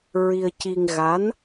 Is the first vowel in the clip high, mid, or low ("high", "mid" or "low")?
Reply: high